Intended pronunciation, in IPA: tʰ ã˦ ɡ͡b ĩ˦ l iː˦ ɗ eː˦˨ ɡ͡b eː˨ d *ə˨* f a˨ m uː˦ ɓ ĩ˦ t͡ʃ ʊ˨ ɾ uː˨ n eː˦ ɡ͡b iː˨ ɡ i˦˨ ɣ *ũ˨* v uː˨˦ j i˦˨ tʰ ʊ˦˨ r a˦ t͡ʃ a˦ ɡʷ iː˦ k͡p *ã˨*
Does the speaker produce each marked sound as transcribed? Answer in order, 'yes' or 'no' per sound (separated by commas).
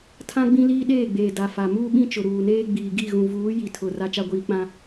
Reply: no, yes, no